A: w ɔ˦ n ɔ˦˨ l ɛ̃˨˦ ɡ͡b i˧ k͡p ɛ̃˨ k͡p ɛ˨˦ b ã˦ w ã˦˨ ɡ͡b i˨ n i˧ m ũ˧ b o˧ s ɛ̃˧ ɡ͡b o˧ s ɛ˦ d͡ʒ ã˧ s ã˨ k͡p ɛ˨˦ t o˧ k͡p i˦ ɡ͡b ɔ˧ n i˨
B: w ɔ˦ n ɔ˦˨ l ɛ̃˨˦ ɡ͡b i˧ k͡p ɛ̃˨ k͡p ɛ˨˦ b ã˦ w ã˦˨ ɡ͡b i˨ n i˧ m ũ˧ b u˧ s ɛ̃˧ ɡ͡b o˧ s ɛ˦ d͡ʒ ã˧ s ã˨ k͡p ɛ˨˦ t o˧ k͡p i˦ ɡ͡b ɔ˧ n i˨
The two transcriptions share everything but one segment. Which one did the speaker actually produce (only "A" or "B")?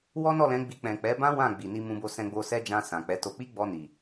A